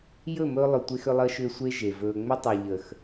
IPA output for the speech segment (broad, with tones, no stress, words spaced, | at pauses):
jɵ˦˨mɵː˧lˠʏ˨ tʷe˧xʏ˧lˠəː˧ʃʏː˧ sʷe˦ ʒe˨vɵː˧ ŋ͡mʏ˦tˤu˨ ʎə˨x